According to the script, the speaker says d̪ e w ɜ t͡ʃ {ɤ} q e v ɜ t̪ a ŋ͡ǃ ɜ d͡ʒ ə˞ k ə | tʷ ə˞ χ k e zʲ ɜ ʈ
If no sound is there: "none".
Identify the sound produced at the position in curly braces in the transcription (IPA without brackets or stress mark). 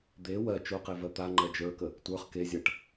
o